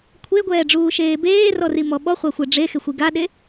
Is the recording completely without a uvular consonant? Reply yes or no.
no